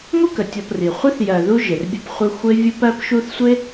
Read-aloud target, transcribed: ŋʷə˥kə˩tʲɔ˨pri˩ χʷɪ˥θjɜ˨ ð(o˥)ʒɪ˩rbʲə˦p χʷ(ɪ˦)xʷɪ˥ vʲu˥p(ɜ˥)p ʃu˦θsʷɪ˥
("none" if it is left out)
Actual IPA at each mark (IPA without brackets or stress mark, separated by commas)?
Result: u˥, ɪ˦, ɜ˥